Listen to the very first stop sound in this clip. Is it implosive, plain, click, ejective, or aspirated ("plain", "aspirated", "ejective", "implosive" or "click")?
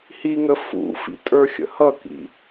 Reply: ejective